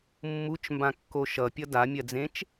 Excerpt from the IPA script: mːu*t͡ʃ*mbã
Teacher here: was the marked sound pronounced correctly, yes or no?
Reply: yes